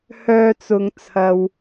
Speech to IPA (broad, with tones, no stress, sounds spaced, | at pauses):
h œː˧ t͡s ʊ˨ ŋ t͡sʰ ɐ˨ w